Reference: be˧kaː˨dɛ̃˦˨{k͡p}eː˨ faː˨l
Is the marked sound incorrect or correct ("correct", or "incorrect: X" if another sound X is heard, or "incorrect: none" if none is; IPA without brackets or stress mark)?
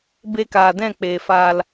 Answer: correct